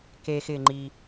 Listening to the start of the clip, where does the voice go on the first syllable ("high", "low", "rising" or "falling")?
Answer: high